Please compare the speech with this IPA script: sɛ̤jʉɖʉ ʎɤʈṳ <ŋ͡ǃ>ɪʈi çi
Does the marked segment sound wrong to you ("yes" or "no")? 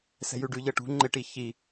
no